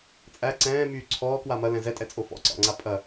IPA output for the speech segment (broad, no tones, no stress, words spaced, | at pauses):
t͡sʼæ ǀɛ̃ːmyː ǀʰɔːkwa mɐlɛ̃ zɛtʼɛt͡sʼo fɔ̰ǀɑ̰ŋ͡ǀa pʼɐ